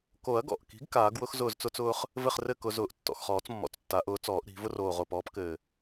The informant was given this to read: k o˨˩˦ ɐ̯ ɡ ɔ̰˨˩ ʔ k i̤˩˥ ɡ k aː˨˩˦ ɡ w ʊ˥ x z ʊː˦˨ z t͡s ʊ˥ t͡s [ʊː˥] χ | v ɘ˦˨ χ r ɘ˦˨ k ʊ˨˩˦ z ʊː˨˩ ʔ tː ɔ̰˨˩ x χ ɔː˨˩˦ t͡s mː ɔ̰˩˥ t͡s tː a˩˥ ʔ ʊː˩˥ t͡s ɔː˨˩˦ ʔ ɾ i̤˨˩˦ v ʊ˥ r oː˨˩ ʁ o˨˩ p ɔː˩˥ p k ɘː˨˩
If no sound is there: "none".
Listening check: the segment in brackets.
ʊː˥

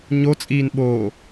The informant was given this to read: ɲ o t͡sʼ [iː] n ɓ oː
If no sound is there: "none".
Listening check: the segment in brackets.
iː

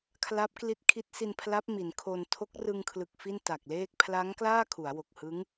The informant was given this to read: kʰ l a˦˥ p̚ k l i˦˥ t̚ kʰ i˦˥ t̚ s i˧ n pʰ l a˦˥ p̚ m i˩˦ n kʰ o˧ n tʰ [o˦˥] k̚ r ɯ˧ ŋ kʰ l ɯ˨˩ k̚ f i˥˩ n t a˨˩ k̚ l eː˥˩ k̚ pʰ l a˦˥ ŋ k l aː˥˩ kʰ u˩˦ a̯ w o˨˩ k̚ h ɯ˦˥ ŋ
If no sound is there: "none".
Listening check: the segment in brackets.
o˦˥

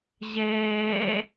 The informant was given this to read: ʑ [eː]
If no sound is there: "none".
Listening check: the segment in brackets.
eː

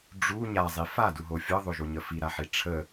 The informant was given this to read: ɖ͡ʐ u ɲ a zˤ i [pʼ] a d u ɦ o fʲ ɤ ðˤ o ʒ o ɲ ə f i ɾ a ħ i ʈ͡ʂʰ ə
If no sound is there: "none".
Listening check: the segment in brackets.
f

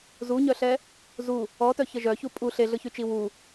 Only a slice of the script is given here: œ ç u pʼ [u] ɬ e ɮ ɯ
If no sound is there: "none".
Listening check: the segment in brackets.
u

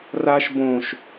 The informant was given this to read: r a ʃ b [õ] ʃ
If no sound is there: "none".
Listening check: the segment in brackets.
õ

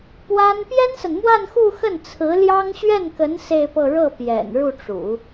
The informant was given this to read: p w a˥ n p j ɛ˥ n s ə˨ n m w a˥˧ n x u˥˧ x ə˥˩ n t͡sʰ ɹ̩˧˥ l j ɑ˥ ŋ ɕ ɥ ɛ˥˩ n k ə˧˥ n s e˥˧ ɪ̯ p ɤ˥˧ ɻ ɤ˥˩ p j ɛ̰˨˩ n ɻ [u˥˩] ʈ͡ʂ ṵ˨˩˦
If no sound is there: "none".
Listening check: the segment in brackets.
u˥˩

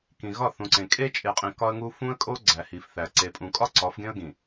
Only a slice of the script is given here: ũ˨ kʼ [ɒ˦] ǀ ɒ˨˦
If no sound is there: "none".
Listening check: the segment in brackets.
ɒ˦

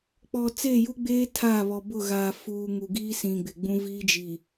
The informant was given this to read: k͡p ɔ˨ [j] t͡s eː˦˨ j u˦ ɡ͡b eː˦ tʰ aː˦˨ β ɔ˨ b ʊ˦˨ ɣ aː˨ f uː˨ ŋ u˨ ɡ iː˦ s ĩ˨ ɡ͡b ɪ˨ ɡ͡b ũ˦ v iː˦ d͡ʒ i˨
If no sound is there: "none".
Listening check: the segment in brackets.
none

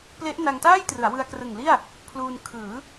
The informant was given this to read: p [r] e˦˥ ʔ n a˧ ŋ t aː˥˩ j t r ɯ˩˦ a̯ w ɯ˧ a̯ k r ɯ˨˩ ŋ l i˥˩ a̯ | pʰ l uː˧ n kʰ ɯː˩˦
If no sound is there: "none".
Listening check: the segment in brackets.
l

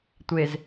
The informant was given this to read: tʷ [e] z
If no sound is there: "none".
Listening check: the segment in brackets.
e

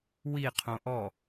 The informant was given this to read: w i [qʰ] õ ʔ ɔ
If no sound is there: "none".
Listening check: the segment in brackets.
qʰ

